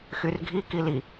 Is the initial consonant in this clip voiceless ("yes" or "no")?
yes